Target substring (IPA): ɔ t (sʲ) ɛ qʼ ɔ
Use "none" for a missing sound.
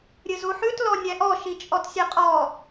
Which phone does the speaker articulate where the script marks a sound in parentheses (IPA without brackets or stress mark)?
sʲ